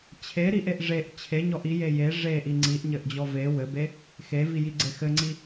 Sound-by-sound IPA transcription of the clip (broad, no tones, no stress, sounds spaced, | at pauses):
t͡ɕʰ e ɾ i ʔ e ʔ ʐ e ʔ t͡ɕʰ e ɲ ɔ ʔ i j e j e ʐ e ʔ i ŋ͡ǀ i ʔ ɲ ɘ ʔ d͡ʑ ɔ v e w ɘ b e | x e v i j i ɡ͡ǀ e x ɘ ŋ͡ǀ i